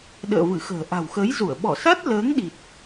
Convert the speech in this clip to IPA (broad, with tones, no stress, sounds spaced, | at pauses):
ɗ ə̰ː˧˨ v ɨ˧˩ x ə̤ː˨˩ ʔ a̤˨˩ w x əː˨˦ j z u˧˩ ə̯ ɓ ɔ˧˩ s a˦˥ t̚ l əː˨˦ ŋ ɗ i˨˩ t̚